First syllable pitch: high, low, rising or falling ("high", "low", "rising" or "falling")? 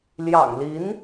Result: low